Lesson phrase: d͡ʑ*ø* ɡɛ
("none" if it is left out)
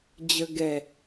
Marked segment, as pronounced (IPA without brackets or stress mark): ə